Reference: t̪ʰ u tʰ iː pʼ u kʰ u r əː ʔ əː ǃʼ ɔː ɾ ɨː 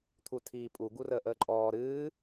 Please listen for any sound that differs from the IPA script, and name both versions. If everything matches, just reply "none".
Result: kʰ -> ɡ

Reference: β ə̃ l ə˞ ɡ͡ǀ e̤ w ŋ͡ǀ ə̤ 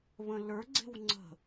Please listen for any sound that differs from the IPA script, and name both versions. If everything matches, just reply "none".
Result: none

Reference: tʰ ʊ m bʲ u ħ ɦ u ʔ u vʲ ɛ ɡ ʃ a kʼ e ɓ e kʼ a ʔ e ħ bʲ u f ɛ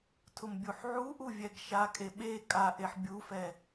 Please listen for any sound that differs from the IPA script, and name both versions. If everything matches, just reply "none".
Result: ɦ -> ʕ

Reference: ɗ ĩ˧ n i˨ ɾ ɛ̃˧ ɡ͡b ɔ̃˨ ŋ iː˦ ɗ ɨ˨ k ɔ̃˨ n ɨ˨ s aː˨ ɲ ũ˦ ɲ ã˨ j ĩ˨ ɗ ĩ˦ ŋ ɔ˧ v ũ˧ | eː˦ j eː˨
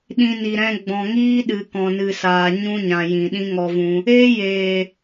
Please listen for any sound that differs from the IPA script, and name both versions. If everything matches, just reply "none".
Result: none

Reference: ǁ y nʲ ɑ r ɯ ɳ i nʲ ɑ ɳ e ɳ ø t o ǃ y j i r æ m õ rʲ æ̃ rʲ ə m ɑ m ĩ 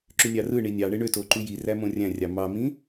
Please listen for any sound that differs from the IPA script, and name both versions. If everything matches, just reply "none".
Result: ə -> ɑ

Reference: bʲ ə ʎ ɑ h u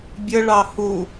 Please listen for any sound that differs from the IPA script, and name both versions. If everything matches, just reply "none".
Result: ʎ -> ɭ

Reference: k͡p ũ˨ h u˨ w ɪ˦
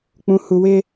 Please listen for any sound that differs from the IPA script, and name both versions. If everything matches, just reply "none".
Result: none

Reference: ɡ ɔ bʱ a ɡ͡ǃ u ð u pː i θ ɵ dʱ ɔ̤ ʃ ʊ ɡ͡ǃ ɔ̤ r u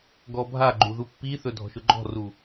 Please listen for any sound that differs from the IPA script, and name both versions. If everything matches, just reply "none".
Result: none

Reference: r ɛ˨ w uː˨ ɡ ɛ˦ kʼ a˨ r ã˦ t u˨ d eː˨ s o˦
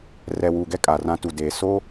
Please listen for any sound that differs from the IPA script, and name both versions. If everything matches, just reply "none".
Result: none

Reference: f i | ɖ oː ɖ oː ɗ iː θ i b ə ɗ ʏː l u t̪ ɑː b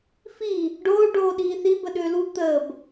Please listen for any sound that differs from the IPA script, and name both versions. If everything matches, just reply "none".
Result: ɑː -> əː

